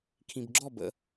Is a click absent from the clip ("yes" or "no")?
no